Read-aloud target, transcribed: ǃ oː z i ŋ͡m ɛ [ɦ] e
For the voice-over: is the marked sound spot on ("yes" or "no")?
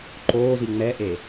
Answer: no